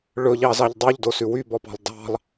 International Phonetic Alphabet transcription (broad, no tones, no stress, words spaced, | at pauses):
ɭɵʎɑzɑʎ dˤyʎdosʉ wybɔpɑ̤lˠ dɑ̤lˠ